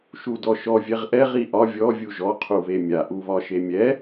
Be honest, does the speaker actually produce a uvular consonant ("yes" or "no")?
yes